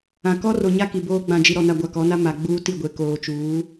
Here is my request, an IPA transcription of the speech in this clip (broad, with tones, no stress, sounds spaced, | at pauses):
ã˨ k ɔ˦ r o˨ ɲ a˦ k i˨ b oː˦ ɡ͡b ã˨ d͡ʒ i˨ ɾ ɔ˨ n a˨ ɡʷ a˨ k ɔ˨˦ n a˦ m a˨ ɡ͡b uː˦ t i˦˨ ɡʷ e˨ k oː˨ t͡ʃ uː˨˦